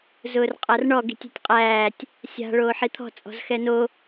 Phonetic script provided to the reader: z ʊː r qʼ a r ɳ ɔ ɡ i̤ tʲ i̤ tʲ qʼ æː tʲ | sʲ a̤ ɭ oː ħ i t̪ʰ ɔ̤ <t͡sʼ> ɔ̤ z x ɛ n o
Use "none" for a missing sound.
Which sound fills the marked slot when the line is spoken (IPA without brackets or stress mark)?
t͡sʼ